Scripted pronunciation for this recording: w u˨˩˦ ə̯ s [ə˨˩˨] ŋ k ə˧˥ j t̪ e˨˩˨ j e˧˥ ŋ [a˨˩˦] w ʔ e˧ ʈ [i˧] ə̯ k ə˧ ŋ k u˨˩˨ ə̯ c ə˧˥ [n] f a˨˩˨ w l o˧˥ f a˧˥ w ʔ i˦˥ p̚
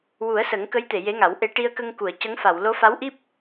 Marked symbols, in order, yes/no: no, yes, yes, no

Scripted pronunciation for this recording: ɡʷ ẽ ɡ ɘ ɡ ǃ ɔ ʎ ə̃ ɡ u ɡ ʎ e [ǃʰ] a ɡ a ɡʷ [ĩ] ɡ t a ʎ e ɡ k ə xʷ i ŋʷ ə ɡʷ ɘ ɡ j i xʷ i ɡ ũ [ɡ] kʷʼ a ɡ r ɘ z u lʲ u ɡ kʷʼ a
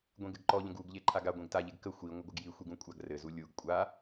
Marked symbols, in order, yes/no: yes, no, no

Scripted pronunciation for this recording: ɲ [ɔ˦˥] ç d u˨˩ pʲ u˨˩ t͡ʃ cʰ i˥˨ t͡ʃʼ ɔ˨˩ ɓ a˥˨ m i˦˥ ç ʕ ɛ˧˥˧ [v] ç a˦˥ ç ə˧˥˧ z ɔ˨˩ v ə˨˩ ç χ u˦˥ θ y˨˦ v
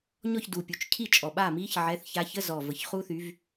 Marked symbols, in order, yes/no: no, no

